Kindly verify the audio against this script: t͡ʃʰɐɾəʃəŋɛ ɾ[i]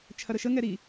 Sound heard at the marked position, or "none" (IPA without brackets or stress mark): i